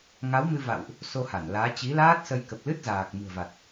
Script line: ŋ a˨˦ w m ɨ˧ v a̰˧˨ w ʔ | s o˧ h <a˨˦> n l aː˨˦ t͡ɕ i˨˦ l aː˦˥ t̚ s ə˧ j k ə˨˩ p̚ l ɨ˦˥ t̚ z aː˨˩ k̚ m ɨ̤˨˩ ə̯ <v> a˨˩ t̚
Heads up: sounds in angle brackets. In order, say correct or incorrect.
incorrect, correct

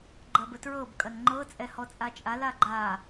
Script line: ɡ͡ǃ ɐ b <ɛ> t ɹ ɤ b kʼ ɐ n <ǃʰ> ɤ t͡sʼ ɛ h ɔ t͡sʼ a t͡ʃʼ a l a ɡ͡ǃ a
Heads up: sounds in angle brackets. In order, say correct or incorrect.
incorrect, incorrect

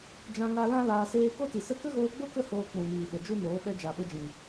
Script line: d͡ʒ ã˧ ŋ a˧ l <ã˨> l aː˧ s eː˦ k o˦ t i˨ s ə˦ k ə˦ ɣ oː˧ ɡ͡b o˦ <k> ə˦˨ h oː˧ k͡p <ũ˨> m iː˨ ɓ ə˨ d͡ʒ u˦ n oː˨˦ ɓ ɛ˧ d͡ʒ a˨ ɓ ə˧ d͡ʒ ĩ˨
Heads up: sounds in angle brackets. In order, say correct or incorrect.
incorrect, correct, correct

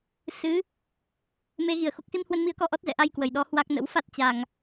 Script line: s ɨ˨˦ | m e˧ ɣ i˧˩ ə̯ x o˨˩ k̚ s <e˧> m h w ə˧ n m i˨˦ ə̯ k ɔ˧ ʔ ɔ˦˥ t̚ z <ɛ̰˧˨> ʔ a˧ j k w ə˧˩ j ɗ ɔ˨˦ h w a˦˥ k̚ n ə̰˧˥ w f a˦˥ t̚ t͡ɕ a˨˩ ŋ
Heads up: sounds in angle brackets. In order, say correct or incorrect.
incorrect, correct

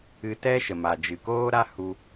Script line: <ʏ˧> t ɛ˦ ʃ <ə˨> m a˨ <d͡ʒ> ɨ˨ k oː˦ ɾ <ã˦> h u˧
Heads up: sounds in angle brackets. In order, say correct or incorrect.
incorrect, correct, correct, incorrect

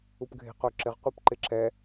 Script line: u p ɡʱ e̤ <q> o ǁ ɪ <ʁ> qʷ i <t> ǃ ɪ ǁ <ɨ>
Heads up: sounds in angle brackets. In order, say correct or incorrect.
correct, correct, incorrect, incorrect

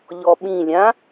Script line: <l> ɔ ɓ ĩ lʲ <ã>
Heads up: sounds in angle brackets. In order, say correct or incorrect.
incorrect, correct

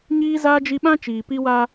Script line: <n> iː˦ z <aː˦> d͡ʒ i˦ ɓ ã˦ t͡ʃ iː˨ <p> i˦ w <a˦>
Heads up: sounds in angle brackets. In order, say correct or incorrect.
incorrect, correct, correct, correct

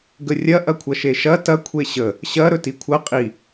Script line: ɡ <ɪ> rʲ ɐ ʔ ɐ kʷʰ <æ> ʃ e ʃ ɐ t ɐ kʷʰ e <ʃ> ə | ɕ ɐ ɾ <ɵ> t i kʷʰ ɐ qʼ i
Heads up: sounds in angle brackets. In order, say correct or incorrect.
incorrect, incorrect, incorrect, correct

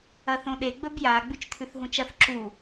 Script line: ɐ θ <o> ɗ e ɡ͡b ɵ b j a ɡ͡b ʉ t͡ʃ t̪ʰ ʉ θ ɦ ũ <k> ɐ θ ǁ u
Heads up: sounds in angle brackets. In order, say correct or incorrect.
incorrect, incorrect

